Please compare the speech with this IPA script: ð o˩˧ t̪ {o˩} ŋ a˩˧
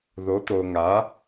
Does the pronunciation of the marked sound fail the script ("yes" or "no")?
no